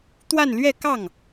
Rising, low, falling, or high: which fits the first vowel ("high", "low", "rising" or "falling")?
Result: falling